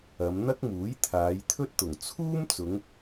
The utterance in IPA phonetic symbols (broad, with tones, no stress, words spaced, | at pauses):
ɐ˨˧m n̪ɐ˥k̚muː˨˥jt̪ʰaː˨˧j t̪ʰɵ˥t̚t̪ʊ˨˩ŋ t͡sʰuː˥mt͡sʊ˨˧ŋ